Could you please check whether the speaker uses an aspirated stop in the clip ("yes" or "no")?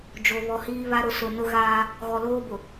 no